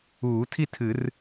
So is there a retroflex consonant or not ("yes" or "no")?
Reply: no